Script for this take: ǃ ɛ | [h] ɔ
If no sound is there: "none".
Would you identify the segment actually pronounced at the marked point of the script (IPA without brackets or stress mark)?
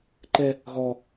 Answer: ɣ